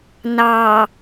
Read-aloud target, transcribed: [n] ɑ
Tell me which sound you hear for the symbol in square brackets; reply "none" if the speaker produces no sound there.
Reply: n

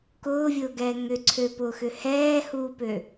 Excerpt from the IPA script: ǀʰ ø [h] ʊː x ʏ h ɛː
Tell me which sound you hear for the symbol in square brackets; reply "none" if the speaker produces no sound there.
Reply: p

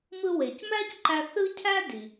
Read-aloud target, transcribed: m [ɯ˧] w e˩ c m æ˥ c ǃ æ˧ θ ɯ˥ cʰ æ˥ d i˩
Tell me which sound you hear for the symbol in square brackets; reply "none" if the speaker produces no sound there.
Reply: ɯ˧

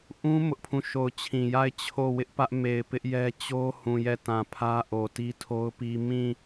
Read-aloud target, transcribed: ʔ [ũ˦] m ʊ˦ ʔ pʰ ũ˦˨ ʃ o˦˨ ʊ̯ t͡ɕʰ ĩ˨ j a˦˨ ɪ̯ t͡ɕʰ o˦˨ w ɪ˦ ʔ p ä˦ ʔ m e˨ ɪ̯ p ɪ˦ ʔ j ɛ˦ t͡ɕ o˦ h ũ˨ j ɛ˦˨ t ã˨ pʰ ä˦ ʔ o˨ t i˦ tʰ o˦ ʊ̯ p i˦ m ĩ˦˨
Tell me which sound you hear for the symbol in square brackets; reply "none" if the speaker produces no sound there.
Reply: ũ˦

